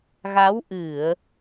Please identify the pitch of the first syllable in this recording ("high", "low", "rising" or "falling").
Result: rising